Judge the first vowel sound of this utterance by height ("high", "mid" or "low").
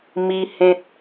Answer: high